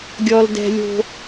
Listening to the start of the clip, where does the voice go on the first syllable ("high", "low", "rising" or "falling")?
high